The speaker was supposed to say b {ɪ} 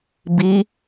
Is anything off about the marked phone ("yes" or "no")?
yes